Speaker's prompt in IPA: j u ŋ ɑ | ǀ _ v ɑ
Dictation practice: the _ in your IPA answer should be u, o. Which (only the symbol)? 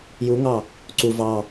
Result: u